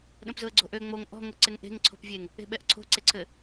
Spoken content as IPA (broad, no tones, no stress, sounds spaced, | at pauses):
ɗ ə̃ p z ʊ ə̯ ɡ͡ǀ o̤ ʔ ø ŋ͡m o ŋ ʔ ɔ̤ ŋ ʊ ǀ ɪ ŋ ʔ e̤ ŋ ǀʰ o̤ p vʲ e ŋ | e̤ ɓ ɛ ʔ ǀʰ o̤ ǀ e ǀʰ ɘ